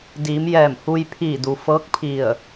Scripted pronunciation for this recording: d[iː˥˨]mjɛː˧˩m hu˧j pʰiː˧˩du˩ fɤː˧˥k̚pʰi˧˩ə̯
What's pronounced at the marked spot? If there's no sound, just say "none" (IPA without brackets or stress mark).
iː˩˧